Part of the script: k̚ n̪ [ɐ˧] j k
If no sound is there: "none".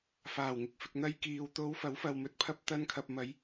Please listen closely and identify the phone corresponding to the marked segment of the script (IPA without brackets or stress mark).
ɐ˧